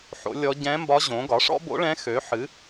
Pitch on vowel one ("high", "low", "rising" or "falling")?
rising